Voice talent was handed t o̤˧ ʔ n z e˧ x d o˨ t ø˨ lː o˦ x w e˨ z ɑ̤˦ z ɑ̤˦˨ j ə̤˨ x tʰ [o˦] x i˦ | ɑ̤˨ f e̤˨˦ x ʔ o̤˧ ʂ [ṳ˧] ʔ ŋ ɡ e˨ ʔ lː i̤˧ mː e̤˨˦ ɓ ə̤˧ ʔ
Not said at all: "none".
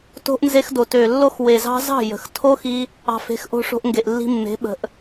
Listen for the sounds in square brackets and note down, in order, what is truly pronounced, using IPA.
o˦, o̤˧

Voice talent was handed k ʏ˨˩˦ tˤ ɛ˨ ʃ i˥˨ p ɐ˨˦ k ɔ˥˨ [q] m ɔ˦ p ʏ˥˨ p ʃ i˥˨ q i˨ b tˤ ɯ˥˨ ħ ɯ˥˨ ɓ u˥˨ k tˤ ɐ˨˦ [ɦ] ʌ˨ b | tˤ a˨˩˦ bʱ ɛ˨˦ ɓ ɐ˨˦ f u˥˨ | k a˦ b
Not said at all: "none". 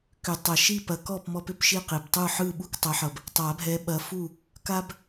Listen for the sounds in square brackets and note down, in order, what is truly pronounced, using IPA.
p, ħ

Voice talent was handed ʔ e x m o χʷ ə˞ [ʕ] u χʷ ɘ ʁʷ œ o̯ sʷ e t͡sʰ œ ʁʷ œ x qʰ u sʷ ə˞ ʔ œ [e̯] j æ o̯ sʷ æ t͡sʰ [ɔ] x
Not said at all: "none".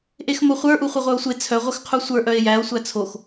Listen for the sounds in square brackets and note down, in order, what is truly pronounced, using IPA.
ʔ, e̯, o

